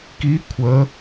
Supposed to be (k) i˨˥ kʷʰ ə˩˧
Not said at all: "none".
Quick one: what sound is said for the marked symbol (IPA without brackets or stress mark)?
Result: k